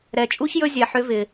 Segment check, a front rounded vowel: present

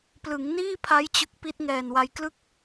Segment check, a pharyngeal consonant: absent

